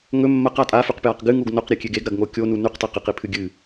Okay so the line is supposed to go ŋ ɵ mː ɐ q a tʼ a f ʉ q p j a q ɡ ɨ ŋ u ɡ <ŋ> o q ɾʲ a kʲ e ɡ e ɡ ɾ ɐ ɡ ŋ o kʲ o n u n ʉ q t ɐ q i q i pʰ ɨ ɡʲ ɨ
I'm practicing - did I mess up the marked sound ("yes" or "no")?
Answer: yes